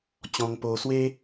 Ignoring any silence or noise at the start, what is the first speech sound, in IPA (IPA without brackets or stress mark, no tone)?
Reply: t͡ɕ